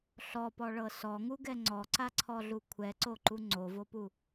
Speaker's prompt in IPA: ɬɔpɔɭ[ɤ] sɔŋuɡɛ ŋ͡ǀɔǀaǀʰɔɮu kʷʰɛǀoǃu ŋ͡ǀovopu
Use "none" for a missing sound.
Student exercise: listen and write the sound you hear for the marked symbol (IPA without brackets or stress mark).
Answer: ɤ